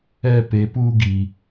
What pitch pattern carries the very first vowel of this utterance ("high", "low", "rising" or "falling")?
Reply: high